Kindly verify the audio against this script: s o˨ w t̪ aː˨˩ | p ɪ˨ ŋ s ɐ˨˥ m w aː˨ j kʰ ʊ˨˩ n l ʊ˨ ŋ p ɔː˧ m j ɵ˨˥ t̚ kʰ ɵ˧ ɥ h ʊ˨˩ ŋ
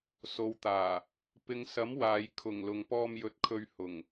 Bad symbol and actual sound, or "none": n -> ŋ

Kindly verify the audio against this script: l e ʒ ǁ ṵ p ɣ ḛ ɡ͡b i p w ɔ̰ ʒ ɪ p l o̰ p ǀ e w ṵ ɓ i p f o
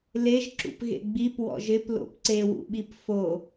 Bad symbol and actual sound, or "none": none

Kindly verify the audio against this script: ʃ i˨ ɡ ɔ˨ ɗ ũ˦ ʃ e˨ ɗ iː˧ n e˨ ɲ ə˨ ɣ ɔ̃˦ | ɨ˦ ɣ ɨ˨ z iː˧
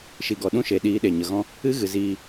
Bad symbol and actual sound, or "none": n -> ɗ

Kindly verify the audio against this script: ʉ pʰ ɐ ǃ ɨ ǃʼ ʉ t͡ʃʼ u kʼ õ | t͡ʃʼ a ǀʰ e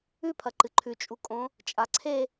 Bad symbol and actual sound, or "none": ǃʼ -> ǃʰ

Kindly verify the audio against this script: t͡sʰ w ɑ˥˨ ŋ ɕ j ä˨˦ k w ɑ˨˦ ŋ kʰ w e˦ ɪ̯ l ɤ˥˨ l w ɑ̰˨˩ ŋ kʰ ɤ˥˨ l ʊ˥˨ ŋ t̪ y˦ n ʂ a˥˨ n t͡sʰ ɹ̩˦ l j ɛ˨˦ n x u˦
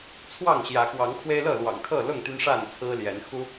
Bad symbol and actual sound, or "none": none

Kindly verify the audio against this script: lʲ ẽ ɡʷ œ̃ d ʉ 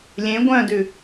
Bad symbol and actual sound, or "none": none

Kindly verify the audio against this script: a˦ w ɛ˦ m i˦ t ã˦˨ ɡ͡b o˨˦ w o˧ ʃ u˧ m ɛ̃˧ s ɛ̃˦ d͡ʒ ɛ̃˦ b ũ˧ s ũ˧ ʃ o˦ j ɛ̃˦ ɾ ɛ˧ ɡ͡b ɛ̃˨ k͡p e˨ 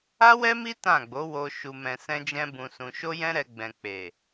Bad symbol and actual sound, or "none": none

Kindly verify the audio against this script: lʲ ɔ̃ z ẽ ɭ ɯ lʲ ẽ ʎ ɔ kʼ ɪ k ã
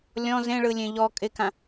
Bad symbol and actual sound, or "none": none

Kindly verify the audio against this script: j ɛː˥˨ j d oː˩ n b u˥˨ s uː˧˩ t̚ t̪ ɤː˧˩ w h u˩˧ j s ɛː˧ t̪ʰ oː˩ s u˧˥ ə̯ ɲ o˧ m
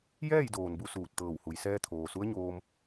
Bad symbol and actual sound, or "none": o˧ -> oː˧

